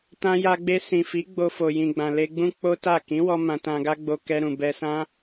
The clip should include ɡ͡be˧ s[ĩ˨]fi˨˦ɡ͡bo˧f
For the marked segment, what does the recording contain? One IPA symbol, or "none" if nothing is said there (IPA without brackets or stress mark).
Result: ĩ˨